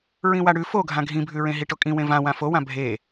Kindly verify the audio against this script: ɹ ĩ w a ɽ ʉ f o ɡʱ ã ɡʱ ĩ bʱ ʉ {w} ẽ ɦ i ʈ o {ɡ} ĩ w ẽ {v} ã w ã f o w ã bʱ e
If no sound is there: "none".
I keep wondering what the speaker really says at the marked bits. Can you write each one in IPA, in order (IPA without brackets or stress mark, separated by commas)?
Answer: ɹ, kʼ, v